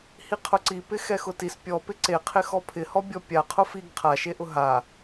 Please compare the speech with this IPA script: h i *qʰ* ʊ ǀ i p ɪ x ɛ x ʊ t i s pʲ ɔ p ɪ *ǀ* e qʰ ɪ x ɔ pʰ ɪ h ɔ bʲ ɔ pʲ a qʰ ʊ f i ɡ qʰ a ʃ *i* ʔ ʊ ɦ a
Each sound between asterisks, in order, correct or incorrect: correct, correct, incorrect: e

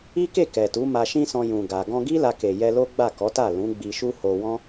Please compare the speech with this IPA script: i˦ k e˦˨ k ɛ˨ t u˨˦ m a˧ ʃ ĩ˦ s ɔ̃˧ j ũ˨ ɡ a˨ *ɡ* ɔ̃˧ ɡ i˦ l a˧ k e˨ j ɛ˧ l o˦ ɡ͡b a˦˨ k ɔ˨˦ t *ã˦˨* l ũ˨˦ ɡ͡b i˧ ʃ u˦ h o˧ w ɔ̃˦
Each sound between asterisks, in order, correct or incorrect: correct, incorrect: a˦˨

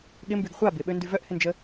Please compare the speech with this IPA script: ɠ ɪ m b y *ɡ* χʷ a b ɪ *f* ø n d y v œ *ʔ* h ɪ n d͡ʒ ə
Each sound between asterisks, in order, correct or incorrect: correct, incorrect: ɓ, correct

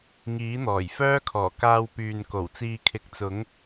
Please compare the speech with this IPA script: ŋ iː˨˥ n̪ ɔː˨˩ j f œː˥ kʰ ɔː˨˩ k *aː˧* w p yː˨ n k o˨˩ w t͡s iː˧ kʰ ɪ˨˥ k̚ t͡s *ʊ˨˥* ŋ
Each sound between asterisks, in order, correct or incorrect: correct, correct

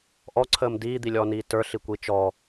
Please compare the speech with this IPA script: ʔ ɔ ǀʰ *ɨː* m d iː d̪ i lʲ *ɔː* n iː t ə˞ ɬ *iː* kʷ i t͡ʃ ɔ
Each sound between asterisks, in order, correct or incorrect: incorrect: əː, correct, incorrect: i

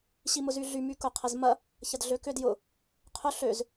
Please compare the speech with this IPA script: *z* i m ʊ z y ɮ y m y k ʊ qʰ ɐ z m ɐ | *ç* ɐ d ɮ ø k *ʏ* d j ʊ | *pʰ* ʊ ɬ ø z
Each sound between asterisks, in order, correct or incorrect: incorrect: ɕ, correct, correct, incorrect: qʰ

